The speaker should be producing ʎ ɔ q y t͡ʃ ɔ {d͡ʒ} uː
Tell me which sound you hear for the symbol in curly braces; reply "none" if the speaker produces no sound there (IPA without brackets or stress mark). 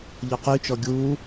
ɡʲ